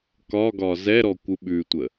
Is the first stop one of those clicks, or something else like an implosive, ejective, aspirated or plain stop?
plain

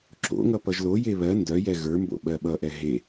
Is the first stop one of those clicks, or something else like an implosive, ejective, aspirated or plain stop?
click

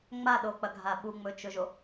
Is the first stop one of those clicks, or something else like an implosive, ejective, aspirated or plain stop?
implosive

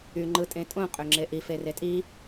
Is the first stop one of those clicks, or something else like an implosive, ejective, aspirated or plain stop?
click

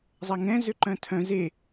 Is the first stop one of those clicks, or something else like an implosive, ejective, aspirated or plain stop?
click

